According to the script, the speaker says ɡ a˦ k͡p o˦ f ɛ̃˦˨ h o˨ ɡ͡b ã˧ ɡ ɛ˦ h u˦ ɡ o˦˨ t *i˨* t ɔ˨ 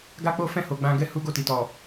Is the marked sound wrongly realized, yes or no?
no